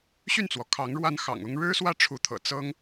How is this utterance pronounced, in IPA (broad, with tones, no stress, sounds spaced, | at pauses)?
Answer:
ɕ y˥˩ n t͡s w ɔ˩ kʰ ɑ˧˥ ŋ ɻ w a˥ n x ɑ̰˨˩ ŋ ʊ˥ ŋ ɻ ɻ̩˥ s w ä˥˩ ʈ͡ʂʰ u˧˥ t̪ʰ ɤ̰˨˩ t͡s ɤ˥ ŋ